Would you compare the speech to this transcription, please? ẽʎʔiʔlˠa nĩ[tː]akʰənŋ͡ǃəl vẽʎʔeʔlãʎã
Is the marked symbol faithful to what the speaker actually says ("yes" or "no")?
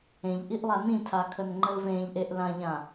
no